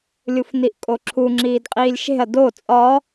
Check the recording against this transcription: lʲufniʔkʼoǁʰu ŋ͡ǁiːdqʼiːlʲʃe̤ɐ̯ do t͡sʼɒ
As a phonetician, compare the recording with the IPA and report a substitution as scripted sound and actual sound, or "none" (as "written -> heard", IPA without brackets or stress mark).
none